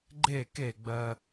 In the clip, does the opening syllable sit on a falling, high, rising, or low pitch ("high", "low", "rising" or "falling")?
falling